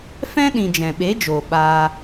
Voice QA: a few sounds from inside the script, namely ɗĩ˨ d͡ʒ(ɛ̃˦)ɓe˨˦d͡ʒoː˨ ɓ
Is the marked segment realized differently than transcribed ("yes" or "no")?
yes